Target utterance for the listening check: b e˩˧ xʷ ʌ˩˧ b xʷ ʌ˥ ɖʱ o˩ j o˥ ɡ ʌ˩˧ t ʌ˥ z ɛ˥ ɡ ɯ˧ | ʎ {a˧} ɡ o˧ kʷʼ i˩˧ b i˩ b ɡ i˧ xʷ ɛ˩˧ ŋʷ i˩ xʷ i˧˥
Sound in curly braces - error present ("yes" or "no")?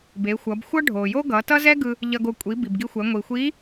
yes